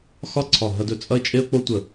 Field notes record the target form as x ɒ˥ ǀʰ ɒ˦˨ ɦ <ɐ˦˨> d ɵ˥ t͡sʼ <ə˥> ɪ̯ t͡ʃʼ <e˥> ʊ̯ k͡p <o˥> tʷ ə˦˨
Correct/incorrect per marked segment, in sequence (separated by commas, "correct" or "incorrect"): incorrect, incorrect, correct, correct